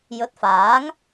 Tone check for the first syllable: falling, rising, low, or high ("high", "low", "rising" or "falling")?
rising